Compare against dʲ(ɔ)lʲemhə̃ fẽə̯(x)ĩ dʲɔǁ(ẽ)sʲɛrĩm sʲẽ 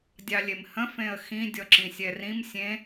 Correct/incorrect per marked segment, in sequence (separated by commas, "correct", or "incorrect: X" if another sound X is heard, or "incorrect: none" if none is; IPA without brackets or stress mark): incorrect: ɑ, correct, incorrect: ĩ